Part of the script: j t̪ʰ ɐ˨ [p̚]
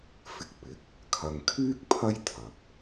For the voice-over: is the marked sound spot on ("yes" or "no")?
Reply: yes